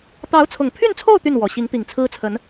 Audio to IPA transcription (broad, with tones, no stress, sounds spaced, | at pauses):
t̪ ɑ˧˥ ʊ̯ t͡sʰ ʊ˨˩ ŋ pʰ y˥˧ n t͡sʰ o˥˧ ʊ̯ t̪ y˥˩ n w ɔ˨˩ ɕ i˧˥ ŋ t̪ i˨˩ ŋ t͡sʰ ɹ̩˥ t͡sʰ ə˧˥ n